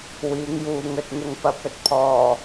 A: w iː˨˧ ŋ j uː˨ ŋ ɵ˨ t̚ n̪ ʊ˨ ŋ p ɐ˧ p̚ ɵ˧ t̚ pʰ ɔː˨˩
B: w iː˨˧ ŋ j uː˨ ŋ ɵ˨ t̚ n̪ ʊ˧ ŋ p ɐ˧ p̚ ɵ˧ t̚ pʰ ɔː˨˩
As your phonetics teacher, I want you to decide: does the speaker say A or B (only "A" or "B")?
A